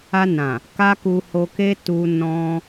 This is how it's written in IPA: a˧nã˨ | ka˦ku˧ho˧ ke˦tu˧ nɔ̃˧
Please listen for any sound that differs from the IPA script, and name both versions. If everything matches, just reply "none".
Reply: none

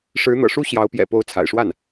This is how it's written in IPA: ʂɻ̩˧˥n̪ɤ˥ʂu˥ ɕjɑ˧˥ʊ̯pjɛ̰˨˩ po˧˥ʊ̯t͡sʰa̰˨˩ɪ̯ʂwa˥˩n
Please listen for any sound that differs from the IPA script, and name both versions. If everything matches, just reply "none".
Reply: ɤ˥ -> ɤ̰˨˩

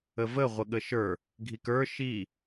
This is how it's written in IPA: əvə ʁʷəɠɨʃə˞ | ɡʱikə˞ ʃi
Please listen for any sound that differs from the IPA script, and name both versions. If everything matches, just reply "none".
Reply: ɨ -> ə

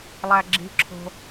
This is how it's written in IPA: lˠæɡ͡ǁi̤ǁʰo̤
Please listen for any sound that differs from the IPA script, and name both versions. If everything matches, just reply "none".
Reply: none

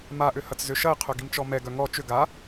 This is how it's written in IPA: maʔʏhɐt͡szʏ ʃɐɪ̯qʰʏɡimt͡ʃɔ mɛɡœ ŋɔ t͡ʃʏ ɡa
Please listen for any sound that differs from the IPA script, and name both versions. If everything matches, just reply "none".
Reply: none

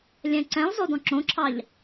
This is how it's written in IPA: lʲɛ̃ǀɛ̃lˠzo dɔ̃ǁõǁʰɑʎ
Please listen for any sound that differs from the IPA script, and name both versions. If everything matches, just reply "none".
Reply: none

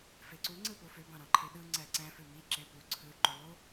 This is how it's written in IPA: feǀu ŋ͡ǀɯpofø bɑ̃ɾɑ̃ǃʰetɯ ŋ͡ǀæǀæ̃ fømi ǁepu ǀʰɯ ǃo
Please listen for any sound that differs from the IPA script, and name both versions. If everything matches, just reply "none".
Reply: t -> ɗ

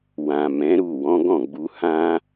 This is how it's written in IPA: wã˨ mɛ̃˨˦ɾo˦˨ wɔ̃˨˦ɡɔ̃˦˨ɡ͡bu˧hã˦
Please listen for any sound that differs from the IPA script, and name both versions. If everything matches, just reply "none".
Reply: o˦˨ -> u˦˨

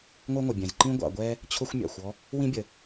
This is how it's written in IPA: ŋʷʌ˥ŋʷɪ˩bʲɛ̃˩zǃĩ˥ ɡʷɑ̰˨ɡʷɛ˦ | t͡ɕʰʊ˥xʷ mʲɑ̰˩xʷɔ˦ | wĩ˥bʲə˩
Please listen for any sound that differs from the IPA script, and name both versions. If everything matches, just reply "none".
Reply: none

